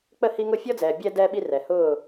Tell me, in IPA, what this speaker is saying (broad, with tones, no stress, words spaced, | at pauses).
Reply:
k͡pə˥˨hi˦ŋʊ˥˨ fʲɔ˦d͡zɛː˨ bʲɛ˦ dɛ˦ɓi˦ rɛ˨hʊː˥˨